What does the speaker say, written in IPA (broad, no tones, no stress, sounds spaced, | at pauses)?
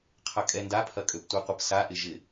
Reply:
qʰ ɐ kʼ ɛ n d a pʰ ɐ kʼ ø p tʷ ɛ qʷ ə p s a ʔ ɪ ʒ ɪ